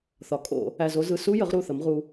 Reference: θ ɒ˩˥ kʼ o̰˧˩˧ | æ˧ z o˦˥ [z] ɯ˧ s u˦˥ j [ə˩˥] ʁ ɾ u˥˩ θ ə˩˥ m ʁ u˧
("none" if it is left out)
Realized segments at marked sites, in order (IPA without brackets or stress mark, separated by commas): z, ə˩˥